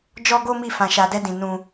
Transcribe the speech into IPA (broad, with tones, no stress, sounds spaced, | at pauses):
d͡ʒ ɔ˦ ɡ o˦ m i˦˨ f ã˧ ʃ a˧ d ɛ˦ d ĩ˧ n ũ˧